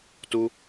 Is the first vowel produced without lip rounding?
no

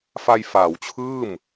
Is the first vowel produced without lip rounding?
yes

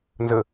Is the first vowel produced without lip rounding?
yes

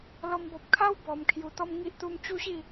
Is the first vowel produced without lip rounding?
no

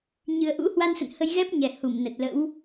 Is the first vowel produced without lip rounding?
yes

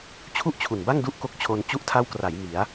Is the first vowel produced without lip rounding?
no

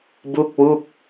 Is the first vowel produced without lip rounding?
no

